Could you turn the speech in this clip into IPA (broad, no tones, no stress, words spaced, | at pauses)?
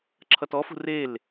ǁʰʌtɔfṳ rel